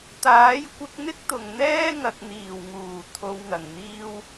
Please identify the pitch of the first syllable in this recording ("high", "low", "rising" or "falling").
rising